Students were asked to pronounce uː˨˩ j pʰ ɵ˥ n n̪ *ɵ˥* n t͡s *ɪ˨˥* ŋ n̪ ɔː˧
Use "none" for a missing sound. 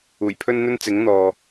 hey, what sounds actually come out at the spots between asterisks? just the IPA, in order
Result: ɵ˥, ɪ˨˥

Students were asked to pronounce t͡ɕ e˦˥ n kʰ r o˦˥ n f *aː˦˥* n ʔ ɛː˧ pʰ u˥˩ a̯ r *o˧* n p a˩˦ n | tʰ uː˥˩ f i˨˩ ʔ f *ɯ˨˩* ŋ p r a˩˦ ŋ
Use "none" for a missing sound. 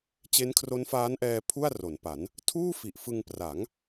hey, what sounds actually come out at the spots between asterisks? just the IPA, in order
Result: aː˦˥, o˩˦, ɯ˧

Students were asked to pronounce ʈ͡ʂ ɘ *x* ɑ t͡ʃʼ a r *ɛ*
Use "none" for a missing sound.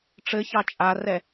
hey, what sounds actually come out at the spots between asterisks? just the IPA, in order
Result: ç, ɛ

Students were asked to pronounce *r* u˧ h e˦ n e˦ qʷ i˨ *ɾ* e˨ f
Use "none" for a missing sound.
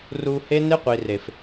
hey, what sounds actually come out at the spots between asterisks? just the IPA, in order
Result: r, r

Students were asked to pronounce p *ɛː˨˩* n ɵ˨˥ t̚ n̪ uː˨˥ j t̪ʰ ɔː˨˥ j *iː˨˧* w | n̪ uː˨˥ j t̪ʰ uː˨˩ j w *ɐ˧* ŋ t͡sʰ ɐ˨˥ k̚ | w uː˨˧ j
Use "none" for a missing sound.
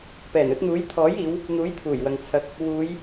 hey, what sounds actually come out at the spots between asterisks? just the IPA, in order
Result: ɛː˨˩, iː˨˧, ɐ˨

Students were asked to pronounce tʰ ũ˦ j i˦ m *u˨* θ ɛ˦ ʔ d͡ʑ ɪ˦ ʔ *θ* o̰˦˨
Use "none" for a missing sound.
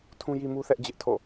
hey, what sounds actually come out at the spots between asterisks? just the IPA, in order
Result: u˦, tʰ

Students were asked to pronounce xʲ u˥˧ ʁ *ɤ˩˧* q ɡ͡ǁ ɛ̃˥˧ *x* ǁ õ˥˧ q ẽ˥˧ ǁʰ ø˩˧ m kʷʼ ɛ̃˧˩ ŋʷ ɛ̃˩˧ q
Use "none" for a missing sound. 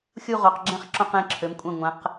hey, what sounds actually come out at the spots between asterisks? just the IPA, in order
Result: o˩˧, χ

